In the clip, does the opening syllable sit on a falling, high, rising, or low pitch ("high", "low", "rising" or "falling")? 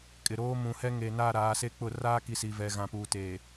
low